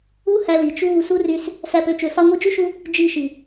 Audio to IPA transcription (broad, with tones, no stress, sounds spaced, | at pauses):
u˦ h æ˧ l i˨ t͡ʃ uː˦˨ s u˦ r y˧ s | s æ˦ p ø˧ t͡ʃ ø˧ f ɑ˧ ŋʷ i˧ d͡ʒ y˦ ʃ u˧ | d͡ʒ i˦˨ ʃ i˨